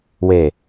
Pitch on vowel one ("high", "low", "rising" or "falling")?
low